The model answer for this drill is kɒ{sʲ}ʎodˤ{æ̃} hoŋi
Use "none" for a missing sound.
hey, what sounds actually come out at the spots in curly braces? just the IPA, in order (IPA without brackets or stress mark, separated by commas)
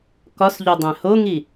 s, æ̃